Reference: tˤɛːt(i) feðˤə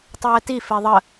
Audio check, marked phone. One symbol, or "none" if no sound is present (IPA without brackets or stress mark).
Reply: i